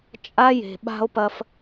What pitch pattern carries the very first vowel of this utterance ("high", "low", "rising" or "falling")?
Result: high